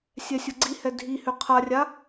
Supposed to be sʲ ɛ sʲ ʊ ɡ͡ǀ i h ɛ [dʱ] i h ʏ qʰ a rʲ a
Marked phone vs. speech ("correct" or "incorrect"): correct